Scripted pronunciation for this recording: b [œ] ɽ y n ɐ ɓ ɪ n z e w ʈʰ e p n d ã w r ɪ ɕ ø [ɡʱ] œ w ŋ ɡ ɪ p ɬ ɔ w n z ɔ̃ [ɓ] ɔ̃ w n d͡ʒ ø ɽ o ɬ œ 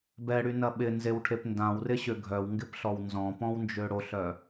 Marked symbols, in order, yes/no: no, yes, no

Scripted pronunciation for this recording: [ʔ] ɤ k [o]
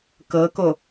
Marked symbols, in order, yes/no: no, yes

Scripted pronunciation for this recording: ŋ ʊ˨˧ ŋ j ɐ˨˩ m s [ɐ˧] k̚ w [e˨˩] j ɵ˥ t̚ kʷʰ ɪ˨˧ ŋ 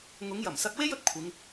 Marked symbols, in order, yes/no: yes, no

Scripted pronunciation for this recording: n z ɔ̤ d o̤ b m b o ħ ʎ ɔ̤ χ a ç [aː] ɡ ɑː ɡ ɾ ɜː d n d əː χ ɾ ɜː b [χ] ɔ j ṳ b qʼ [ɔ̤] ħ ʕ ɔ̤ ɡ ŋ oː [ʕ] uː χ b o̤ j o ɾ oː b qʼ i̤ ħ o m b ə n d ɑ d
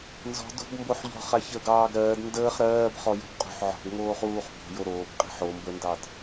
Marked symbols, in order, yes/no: no, yes, no, no

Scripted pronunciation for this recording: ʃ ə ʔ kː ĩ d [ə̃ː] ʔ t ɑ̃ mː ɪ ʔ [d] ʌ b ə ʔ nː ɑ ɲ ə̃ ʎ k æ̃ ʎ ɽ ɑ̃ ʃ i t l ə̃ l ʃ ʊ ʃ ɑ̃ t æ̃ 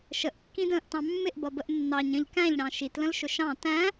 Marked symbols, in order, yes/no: yes, no

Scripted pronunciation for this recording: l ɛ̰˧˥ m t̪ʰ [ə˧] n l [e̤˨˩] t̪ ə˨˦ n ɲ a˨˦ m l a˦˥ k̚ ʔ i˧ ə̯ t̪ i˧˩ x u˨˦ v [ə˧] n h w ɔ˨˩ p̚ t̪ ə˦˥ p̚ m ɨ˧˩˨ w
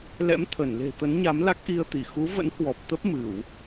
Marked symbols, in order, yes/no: no, yes, no

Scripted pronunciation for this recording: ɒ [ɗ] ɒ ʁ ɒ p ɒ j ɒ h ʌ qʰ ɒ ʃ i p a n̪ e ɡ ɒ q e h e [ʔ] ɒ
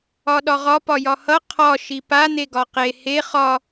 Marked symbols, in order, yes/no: yes, no

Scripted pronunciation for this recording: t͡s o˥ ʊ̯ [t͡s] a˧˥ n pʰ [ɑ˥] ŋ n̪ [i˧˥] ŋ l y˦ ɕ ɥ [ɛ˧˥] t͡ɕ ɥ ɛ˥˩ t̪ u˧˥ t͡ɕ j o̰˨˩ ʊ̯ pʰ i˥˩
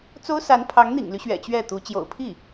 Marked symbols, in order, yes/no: no, no, no, no

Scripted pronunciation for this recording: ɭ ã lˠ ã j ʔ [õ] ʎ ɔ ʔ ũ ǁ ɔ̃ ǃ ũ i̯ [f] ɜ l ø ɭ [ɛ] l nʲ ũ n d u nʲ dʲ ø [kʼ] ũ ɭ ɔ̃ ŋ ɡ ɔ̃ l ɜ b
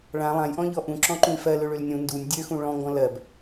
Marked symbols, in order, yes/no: no, yes, no, no

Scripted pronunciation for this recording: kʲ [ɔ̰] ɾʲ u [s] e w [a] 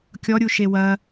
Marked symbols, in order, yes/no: no, no, no

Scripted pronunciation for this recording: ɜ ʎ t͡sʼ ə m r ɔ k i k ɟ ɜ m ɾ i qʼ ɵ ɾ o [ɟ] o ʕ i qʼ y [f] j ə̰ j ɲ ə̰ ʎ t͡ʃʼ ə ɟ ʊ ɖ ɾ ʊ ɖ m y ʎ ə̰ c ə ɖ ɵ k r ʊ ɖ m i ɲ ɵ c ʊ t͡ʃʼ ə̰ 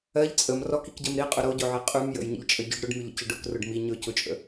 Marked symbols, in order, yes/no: yes, no

